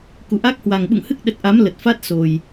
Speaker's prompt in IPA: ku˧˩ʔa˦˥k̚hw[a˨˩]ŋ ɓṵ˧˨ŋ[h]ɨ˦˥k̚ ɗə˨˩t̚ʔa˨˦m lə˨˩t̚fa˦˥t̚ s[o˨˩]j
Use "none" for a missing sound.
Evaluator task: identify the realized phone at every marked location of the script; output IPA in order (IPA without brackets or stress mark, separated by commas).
a˨˩, h, o˨˩